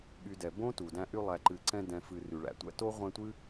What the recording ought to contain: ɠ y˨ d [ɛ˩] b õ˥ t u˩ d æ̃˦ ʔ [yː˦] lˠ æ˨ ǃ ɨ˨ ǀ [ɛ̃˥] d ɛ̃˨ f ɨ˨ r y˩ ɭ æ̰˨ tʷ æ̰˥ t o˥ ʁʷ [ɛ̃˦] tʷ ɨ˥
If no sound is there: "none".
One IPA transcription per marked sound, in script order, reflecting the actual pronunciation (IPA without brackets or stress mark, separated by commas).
ɛ˩, y˦, ɛ̃˦, ɛ̃˦